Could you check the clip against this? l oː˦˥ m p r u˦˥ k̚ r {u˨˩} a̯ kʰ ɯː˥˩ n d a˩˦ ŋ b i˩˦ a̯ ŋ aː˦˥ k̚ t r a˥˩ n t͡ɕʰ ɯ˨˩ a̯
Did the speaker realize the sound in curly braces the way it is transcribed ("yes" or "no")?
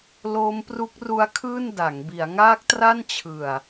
no